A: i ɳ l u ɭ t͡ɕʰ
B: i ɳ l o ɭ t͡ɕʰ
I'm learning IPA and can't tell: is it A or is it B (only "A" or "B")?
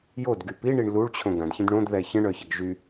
A